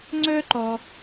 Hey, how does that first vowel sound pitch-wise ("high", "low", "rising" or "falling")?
high